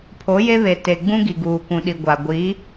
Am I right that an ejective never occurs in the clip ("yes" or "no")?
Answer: yes